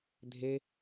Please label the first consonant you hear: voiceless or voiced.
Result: voiced